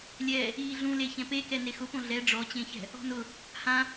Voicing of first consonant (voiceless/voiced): voiced